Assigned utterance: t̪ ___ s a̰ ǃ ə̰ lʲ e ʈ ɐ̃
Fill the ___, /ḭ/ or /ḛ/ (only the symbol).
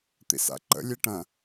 ḭ